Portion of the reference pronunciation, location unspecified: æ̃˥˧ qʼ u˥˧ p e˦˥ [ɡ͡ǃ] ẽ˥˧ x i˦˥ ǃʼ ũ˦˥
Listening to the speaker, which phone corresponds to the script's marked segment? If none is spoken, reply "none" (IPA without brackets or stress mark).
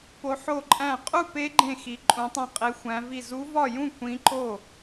ɡ͡ǃ